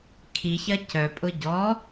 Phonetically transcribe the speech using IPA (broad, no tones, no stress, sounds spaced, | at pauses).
kʰ i ç ɐ c œ pʼ ʊ ɟ ɔ